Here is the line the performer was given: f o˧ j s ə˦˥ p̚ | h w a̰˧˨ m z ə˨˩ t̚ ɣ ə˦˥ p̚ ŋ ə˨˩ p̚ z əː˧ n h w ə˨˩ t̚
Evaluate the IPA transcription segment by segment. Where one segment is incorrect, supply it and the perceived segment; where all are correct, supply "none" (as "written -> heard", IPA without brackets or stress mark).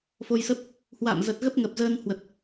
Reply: none